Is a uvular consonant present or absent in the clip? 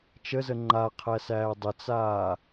present